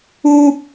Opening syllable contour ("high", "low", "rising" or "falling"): high